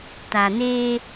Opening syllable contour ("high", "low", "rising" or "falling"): low